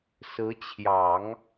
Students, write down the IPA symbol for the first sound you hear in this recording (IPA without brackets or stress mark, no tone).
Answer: s